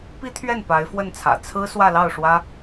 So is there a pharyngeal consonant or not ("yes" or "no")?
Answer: no